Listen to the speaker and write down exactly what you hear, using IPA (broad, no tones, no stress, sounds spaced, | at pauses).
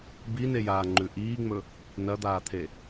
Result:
b i n e j aː ŋ͡ǃ ʉ ʔ iː ŋ͡m ɵ | n ɐ d̪ aː t̪ʰ e